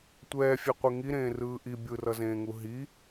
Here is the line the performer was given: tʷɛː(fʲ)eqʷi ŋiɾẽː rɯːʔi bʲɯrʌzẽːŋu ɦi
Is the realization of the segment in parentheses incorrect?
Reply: no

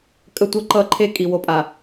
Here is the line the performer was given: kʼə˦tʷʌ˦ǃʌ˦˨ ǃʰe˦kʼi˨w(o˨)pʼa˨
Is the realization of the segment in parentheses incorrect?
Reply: no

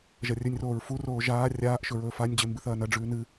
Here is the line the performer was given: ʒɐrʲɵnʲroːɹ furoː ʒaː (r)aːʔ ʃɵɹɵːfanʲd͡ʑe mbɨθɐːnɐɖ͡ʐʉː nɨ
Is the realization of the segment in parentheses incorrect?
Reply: yes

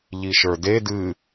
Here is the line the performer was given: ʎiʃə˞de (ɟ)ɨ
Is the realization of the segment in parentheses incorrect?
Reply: yes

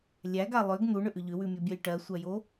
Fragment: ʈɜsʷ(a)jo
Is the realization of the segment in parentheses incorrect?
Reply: yes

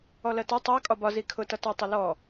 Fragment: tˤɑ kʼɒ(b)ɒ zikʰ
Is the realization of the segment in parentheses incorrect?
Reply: no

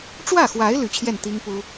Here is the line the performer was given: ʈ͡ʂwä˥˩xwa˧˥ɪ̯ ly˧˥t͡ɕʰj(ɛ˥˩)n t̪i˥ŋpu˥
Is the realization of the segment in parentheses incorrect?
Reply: no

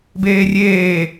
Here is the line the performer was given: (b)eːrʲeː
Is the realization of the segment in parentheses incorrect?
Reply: no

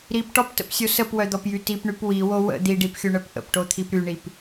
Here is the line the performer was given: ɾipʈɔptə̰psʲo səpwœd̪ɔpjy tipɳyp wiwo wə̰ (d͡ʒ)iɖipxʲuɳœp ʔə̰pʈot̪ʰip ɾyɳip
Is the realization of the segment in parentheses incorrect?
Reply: yes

